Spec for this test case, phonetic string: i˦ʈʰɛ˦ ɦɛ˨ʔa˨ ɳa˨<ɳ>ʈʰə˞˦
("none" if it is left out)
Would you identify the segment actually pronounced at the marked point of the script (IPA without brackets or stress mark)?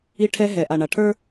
none